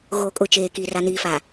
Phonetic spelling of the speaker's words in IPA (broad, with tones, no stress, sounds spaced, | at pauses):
ɣ oː˨ kʼ ʊ˨ t͡ʃ eː˨ k i˨ r a˨ n iː˨ f a˨